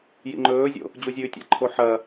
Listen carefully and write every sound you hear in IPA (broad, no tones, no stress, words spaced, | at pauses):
jḭŋ͡ǃɵːzʲo̰ | d͡ʑuzʲʉːtʲa̰ǃʰo ħɐ